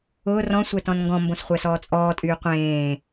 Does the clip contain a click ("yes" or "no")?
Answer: no